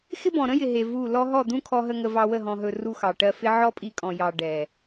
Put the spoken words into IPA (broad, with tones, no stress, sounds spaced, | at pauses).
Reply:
x ɪ˦ b ɔ̃˨ ɾ ə̃˦ j ɪ˨ ɦ e˨ v u˦˨ l ɔ˧ ɦ ɔ˦˨ d̪ ũ˦ kʰ ɔ˧ ɦ ə˧ ŋ ə˧ v ɑ˧ w ə˦˨ ɦ ɔ̃˨ ɦ ɵ˨ r u˧ x ɑ˨ ʈ ɜ˧ f ɪ˦ ʕ ɔ˦ pʼ i˧ kʼ ɔ̃˨ j ɑ˨ ɖ ɛ˨